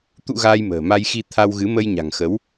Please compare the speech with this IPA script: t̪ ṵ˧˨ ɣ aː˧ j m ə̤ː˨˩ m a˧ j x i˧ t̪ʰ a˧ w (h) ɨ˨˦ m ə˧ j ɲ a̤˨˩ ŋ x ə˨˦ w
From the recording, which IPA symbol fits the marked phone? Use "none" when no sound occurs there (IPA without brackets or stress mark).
ɣ